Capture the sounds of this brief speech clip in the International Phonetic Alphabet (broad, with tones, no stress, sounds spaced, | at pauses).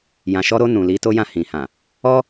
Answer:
j ã˨ ʃ ɔ˧ ɾ o˧ n ũ˨ l i˧ t o˦ j ã˦˨ h ĩ˨ h ã˨ | ɔ˦